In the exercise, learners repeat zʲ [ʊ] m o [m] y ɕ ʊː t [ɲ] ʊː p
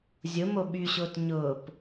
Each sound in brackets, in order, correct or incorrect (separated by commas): correct, incorrect, correct